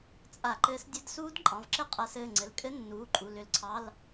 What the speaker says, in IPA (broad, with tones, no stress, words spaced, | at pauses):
t͡sʼa˧˩˧ǃɘː˨˦sdʲɘ˧˥˧dsuː˦˥d ǃʼɑ̃˩˧˩vǁɘ˦˥qʼa˧˩˧sɘː˩˧˩ ŋ͡ǀɘ˩˧˩lkʼɘ˦˥ nːuː˩˧˩ǃʼu˩˧˩ lʏ˧˩˧lǀʰɑ˧˥˧l